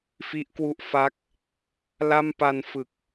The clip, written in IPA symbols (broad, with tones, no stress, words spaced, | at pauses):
fi˦˥ʔ kwu˦˥ʔfa˦˥k̚ | la˥˩mpa˧nfɯ˨˩k̚